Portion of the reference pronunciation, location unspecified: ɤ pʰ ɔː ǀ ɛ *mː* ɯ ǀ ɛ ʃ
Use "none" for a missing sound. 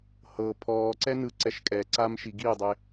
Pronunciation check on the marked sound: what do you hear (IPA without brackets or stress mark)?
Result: n